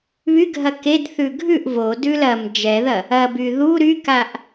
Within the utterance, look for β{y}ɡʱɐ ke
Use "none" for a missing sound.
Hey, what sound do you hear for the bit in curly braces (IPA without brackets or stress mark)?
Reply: y